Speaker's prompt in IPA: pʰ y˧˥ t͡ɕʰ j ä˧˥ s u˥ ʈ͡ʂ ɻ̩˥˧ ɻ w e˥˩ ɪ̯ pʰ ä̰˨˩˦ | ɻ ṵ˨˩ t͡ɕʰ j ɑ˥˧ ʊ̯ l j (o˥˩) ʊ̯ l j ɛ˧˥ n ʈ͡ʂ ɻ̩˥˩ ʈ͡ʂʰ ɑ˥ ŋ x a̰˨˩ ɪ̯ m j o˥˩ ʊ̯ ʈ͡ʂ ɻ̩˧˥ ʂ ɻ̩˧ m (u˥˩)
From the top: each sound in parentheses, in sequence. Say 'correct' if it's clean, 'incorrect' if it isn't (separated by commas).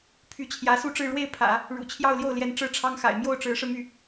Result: correct, incorrect